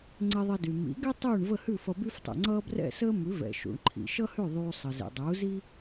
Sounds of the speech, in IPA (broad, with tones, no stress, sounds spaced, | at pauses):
ŋ͡ǀ e˧ ðˤ ʌ˧ d y˩ m ḭ˩˥ ɡ ɛ˥ tˤ uː˥˩ ɳ v ə˥˩ h ʉ˥˩ f ʌ˧ b y˥ f tˤ ɛ̰˩ ŋ͡ǀ ʌː˥ b r ɛ̰˥˩ s əː˥ m ʉ˩˥ v ɛ̰˩ ʃ ṵ˩ ɳ ǃʰ ḭ˩ ʃ ʌ˥ h ʉ˥˩ ðˤ uː˧ sˤ ə˩ z ḛ˩ dˤ uː˩˥ z i˥